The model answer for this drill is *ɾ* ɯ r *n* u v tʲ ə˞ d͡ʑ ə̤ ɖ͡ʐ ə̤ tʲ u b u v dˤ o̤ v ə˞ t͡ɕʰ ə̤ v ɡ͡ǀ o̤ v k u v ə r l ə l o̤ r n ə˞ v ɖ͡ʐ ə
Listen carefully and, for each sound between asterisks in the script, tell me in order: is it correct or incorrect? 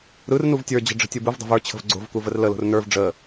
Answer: correct, correct

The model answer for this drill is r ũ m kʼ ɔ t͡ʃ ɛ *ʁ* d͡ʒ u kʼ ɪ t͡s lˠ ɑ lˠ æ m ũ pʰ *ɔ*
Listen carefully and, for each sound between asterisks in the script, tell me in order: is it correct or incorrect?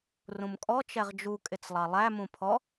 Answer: correct, correct

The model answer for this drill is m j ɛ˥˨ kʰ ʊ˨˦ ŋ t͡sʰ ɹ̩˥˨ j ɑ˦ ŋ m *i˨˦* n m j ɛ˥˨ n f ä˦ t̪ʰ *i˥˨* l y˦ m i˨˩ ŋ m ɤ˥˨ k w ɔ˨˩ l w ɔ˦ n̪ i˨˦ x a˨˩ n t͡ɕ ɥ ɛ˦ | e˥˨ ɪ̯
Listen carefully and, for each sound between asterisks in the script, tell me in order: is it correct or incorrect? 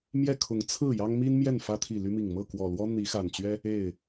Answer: incorrect, incorrect

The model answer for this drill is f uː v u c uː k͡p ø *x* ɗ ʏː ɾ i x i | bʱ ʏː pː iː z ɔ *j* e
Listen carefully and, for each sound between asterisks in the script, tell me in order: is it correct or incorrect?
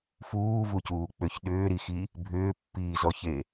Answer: incorrect, incorrect

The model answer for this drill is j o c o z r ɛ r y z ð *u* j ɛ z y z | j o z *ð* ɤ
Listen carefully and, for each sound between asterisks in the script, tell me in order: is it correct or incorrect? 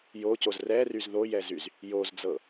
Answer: incorrect, incorrect

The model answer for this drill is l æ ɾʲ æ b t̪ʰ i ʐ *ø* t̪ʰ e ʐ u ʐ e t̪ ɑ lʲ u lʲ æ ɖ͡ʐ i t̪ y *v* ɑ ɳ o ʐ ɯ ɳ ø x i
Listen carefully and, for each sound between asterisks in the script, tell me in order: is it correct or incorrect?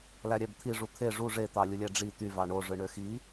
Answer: incorrect, correct

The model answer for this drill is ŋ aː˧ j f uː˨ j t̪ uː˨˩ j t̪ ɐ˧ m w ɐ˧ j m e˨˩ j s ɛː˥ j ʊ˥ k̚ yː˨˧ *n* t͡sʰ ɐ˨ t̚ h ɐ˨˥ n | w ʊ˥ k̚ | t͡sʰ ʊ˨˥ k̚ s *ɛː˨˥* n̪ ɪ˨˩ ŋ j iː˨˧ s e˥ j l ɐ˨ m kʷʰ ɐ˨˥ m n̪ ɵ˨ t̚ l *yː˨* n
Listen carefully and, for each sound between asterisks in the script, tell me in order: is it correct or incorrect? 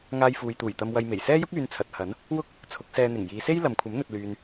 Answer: correct, incorrect, correct

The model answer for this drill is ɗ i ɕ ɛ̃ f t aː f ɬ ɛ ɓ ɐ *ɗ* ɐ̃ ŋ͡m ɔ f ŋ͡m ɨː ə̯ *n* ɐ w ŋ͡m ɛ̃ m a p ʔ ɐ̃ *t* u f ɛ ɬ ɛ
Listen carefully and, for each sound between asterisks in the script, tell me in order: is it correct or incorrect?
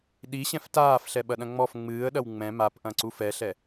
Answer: correct, incorrect, incorrect

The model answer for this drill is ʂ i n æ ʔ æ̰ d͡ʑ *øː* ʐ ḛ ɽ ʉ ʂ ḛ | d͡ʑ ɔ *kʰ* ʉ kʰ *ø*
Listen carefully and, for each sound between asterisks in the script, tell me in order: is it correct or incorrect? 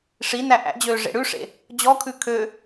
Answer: correct, correct, correct

